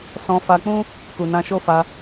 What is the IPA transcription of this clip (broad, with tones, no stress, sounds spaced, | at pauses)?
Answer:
s ɔ̃˧ f a˧ k͡p ũ˦ | k u˨ n ã˧ ʃ o˦ f a˧